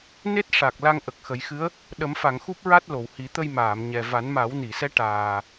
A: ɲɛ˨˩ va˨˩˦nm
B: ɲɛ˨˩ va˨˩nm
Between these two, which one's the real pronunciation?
A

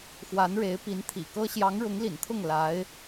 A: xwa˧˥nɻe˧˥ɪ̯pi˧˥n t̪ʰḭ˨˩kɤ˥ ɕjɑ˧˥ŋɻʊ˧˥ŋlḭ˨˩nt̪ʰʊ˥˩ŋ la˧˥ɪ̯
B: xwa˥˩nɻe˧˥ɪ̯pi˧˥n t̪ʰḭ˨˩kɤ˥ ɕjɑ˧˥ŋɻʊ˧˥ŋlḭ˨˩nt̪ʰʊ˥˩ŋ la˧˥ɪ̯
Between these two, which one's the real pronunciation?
A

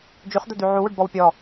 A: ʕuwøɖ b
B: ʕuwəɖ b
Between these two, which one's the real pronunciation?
A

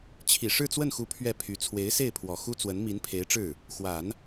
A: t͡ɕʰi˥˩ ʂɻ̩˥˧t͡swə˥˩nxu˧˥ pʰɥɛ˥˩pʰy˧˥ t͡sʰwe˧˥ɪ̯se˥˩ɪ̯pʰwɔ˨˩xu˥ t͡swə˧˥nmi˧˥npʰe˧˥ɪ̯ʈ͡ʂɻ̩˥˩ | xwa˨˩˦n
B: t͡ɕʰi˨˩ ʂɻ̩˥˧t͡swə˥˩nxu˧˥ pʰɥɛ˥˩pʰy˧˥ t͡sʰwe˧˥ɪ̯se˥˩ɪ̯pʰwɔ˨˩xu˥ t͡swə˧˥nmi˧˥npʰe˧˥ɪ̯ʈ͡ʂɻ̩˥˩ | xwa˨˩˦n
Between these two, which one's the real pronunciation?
B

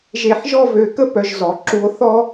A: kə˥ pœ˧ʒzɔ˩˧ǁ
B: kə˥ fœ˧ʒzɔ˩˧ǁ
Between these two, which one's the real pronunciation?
A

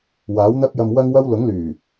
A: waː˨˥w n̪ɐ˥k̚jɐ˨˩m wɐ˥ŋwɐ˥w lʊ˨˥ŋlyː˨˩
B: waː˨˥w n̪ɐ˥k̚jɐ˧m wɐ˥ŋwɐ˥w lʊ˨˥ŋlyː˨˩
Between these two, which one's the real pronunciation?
B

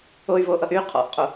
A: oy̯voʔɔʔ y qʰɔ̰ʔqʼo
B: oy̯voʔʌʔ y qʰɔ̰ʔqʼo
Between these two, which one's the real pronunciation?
B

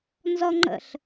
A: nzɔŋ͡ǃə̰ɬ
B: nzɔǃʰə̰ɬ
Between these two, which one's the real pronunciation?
A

